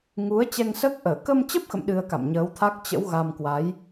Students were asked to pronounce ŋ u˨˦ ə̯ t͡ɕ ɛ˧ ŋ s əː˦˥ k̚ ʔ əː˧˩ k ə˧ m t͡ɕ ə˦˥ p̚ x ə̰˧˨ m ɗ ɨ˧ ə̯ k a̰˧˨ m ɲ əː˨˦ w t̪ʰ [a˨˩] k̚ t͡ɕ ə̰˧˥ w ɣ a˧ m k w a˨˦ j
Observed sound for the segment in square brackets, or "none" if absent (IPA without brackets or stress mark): a˦˥